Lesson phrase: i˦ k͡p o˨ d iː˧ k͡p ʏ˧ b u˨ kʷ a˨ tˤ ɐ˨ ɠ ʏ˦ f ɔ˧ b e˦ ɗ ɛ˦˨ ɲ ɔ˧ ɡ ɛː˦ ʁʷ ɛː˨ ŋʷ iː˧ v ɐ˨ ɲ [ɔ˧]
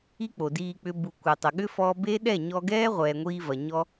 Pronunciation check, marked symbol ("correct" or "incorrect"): correct